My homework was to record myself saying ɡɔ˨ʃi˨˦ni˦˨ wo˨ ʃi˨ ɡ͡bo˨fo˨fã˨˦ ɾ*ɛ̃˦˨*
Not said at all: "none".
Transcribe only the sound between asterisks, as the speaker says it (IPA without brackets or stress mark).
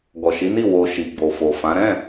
ɛ̃˦˨